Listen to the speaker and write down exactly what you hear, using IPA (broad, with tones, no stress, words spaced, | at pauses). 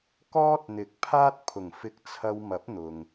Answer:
kɔː˥t̚n̪ɪ˨˥k̚pʰaː˥t̚ pʰʊ˨˩ŋ fɪ˧k̚t͡sʰɐ˧wmɐ˨˥p̚ n̪ʊ˨ŋ